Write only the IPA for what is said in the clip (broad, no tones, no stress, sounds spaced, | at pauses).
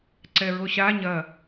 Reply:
ǀ ɛ ɹ o ɕ a ɲ ɐ